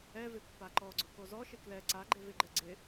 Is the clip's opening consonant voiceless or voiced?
voiced